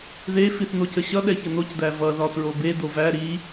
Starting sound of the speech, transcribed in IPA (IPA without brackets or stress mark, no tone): ð